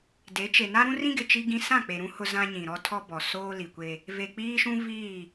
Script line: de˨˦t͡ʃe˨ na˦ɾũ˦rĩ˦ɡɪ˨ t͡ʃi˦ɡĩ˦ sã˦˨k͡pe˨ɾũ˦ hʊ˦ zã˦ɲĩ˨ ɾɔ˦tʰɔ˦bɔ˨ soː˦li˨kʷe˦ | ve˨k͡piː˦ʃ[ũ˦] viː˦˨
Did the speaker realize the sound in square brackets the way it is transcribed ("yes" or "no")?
yes